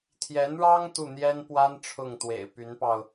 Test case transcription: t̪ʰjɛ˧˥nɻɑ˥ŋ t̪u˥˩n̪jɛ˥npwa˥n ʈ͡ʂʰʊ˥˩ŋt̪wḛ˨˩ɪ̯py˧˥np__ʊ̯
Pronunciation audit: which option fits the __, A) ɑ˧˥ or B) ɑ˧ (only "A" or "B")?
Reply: B